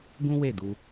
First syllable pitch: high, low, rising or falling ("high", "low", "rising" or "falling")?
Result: high